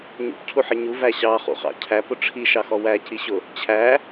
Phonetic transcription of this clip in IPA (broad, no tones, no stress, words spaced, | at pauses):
ɲṵpcʰuħɪ ɲuvæ ɕɑχṵχɑ̰ cʰæpʊ ʈ͡ʂʰiʃɑxɔ wæciɕʊ | t͡ɕʰæ